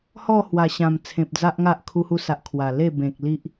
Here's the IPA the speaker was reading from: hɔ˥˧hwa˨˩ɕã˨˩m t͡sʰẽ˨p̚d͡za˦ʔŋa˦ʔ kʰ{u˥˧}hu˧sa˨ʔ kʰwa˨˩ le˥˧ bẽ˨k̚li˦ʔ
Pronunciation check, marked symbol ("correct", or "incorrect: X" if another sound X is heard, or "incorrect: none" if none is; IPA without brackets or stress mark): incorrect: u˧